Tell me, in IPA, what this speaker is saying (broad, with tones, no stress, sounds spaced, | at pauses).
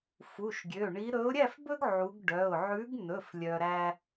f u˩˧˩ ʃ ɡʲ ø˩˧˩ ɳ i˨˦ ɾ ɵ˨˦ ʊ̯ ɾʲ æ˥˨ f b ɵ˦ ɡ ʕ u˨˦ ɡ ɖ œ˩˧˩ ʊ̯ ʕ ʉ˨˦ ɡ n ɵ˩˧˩ f lʲ œ˦ ɾ æ˦